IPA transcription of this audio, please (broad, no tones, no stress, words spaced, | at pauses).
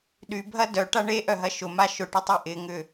ɗybʱɐ dœʈa ɳe ʔœɦɐʃʊma ʃʊʈʏ tˤyʔɪŋʏ